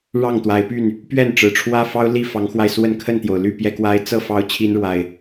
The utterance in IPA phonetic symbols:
ɻ ɑ˥˨ ŋ t̪ w a˨˦ ɪ̯ p y˥˨ n | p ɥ ɛ˥˨ n ʈ͡ʂ ɻ̩˨˩ ʈ͡ʂʰ w ä˦ f ɑ˦ ʊ̯ l i˥˨ f ɑ˨˦ ŋ x w a˧ ɪ̯ s w ə˥˨ n kʰ ə˥˨ n t̪ j o˩ ʊ̯ l y˥˨ p j ɛ˦ k w a˦ ɪ̯ t͡s ɤ˥˨ f ɑ˦ ʊ̯ t͡ɕʰ i˦ n ɻ w a˨˩ ɪ̯

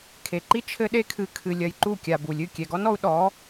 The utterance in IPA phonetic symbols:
kʰ e˨ ǃ i˦ t͡ʃʰ ɘ˦ ɗ e˦ kʰ ɨ˧ kʰ ɨ˨ lʲ ɐ˨ j ǃ u˦˨ kʲ a˨ b u˨ lʲ ɨ˦˨ kʲ ɛ˨ ɡ ɔ˦ n ɔ˧ u̯ ɗ ɔ˨˦

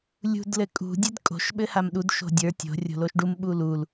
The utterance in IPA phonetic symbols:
lʲ ṳ d l ɘ kʼ ṳ dʲ ɘ d kʼ o̤ ʃ ɓ ɘ h a m ɗ u d ʃ o̤ dʲ ə˞ tʲ o̤ rʲ o̤ l o ʃ ɖ u m ɓ u l u l

